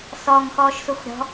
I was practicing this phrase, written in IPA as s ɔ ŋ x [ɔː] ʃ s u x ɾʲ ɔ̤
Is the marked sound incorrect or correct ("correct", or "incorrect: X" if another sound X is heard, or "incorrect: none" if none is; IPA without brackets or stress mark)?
correct